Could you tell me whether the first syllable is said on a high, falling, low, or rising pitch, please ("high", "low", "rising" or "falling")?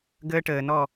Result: high